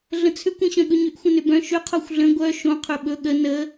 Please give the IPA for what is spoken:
ɮə̃t͡sʰʏkʷ ĩɕœ̃ɠɵɲʏʔ xʷə̃nʏbœ̃ ʃʏ qʰoxʷɮə̃ ɡʷœ ʃõ qʰɵɓɵ ɠə nə

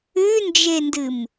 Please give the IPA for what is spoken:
ʉnd͡ʒendɨm

